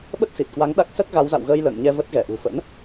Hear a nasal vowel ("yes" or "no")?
no